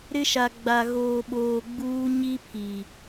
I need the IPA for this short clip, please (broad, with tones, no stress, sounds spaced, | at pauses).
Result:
ɾ ɪ˦ ʃ a˨ ɡ͡b a˨ ɣ oː˨ ɓ oː˨ ɡ͡b uː˦ ɲ i˦ pʰ i˨